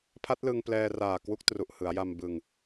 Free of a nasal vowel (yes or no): yes